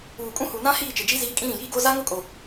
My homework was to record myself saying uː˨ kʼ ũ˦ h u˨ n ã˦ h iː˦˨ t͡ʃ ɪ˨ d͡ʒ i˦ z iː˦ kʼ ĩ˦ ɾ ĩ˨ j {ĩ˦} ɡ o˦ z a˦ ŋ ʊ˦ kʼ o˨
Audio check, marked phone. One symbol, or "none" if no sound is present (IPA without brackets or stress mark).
i˦